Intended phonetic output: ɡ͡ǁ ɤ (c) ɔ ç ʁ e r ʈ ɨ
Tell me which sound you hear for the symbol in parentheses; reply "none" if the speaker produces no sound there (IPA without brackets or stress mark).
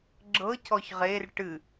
c